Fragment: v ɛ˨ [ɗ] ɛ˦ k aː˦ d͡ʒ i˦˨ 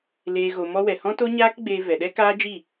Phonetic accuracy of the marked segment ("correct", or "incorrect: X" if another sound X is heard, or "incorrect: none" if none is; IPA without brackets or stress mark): correct